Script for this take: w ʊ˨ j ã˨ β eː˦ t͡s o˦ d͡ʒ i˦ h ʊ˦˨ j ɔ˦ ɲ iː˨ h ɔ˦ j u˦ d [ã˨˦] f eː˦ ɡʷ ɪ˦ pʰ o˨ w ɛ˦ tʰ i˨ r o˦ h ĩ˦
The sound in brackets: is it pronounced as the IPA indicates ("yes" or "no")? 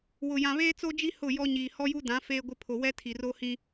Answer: yes